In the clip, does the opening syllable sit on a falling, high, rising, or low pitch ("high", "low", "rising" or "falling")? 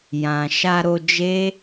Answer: low